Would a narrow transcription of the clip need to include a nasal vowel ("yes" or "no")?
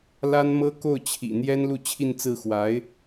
no